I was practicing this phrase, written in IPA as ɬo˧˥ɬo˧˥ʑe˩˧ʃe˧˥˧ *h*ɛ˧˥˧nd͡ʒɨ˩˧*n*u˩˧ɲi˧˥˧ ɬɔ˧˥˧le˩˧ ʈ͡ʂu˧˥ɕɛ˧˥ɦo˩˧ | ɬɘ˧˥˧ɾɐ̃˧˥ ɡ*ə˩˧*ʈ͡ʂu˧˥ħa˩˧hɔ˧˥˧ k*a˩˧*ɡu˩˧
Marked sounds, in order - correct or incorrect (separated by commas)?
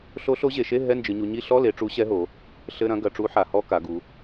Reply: incorrect, incorrect, incorrect, correct